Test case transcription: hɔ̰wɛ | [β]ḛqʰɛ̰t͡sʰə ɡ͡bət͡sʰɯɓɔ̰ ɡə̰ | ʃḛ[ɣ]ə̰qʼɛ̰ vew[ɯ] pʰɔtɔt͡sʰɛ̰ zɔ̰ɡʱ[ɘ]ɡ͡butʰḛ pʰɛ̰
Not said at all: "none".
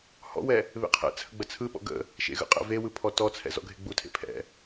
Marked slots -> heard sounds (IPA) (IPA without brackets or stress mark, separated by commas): β, ɣ, ɯ, e